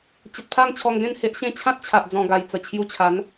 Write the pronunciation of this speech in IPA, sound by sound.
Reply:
t͡ɕ ə˨ t̚ pʰ a˥˧ ŋ t͡ɕʰ ɔ˧ ŋ ɡ ẽ˥˧ n h e˦ ʔ ɕ ẽ˥˧ t͡ɕʰ ã˦ t̚ t͡ɕʰ a˨ ʔ d͡z ɔ̃˨˩ ɡ a˨˩ j t͡s ə˨˩ t͡ɕʰ j u˧ t͡ɕʰ a˨˦ n

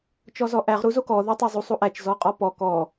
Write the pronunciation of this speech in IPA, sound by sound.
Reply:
t͡ʃ ɔ z ɔ ʔ æ ʁ ɾ u z o k ɔ ð o tˤ æ zˤ u sˤ u ʔ æ t͡ʃ z ɔ qʼ ɔ p ɔ k ɔ

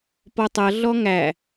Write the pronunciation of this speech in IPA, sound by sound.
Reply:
p ɔ tˤ ʌ ɮ ɔ ŋ æ

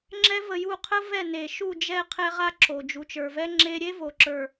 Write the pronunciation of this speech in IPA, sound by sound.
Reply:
ŋ͡ǁ ɛ˦ v ə˧ j u˦˨ qʰ ə˦ v ɛ˦˨ n e˨ ʃ u˦˨ d͡ʒ ɛ˦˨ qʰ ɛ˦ ʁ a˦ ǁ o˨ d͡ʒ u˨ t͡ʃ ə˞˨ v ɛ˦ ŋ͡ǁ e˦ ɾʲ e˦ v o˨ ǁ ə˞˨

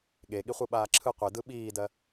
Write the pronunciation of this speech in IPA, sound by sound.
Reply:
ɠ e ɠ i χʷ ɯ ɓ aː ǁʰ ɯ qʷ e d ɯ ɓ iː d ɜ

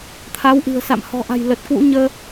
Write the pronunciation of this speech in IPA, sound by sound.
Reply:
t̪ʰ a˨˦ w ʔ ɨ̤˨˩ ə̯ s a̰˧˨ m h ɔ̤˨˩ ʔ a̤˨˩ j l ə˨˩ t̚ k w ṵ˧˥ ɲ əː˧

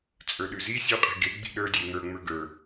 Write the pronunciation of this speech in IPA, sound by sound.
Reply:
t͡sʼ ə˞ ɗ ʉ z i sʲ u qʼ i̤ ɡ e ɡ͡b i̤ ɗ ə˞ dʲ e ŋ ə˞ ŋ͡m ə˞ ɡ ə˞

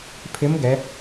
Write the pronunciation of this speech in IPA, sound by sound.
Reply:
pʰ ɪ˦˥ m ɡ ɛ˦˥

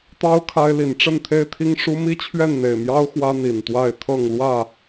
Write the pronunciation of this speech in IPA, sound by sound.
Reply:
t̪ ɑ˦ ʊ̯ kʰ a˦ ɪ̯ l i˨˦ n ʈ͡ʂ ə˥˨ n t̪ʰ e˦ ɪ̯ t̪ʰ i˦ ŋ ʂ u˦ m i˦ t͡ɕʰ ɥ ɛ˥˨ n n̪ e˨˩ ɪ̯ m j ɑ˦ ʊ̯ x w ä˦ n̪ i˨˩ n t̪ w a˥˨ ɪ̯ t̪ʰ ɤ˥˨ ŋ l w ä˥˨

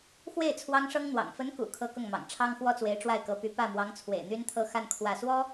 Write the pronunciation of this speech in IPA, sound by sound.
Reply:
x w e˥˩ ɪ̯ t͡sʰ w ɑ˥ ŋ ʂ ɤ˥ ŋ n̪ w ɑ̰˨˩ ŋ f ə˧˥ n k ṵ˨˩ kʰ ɤ˥ k ʊ˥˩ ŋ m ɑ̰˨˩ ŋ ʈ͡ʂʰ ɑ˥ ŋ x w ɔ˥ t͡s w e˧˥ ɪ̯ ʈ͡ʂ w a˥˩ ɪ̯ k ɤ˧˥ p y˧˥ p ä˥˩ m w ɑ˧˥ ŋ t͡sʰ w ḛ˨˩ ɪ̯ n̪ y˥ n t̪ʰ ɤ˥˧ x a˥˧ n kʰ w ä˥˩ s w ɔ˥

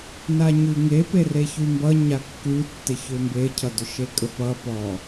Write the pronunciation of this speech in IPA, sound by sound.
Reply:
n a ɲ ʉ ŋ e p e r e ç ʉ m b ʌ ɲ a kː ʉ tː ɪ ç ʏ m b e cʰ ʌ d ʏ ʃ e kʼ ə p ʌ p ɔ

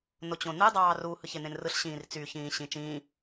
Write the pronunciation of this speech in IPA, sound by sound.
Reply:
n o t͡ɕ õ n ɯ dˤ ɑː r u h ɯ ç e n̪ ẽ n r ɯ ɬ ɕ ĩː r t͡s y ç ĩː ɕ ĩ t͡ʃ ĩː

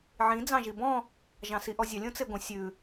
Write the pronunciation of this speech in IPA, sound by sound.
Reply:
ʕ ĩ d͡z ɑ̃ ʒ i b ɔ̃ | ʒ ɑ̃ s i ʔ ɔ zʲ ɐ lʲ õ t͡s e ɡʷ ə̃ sʲ ʉ

